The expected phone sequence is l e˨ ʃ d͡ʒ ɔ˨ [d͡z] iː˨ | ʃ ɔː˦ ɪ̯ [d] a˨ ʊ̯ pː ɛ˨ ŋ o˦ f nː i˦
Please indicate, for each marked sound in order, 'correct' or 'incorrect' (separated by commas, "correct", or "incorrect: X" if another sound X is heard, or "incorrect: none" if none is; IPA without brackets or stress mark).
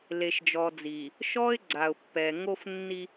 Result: correct, incorrect: ɡ͡ǀ